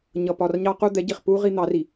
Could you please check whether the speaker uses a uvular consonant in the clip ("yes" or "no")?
yes